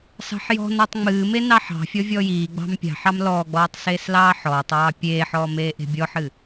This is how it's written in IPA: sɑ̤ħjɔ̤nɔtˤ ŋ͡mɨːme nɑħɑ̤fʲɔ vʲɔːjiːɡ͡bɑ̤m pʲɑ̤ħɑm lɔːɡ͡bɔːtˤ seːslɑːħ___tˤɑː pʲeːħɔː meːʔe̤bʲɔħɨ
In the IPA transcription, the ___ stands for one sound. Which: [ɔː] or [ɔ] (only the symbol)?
ɔː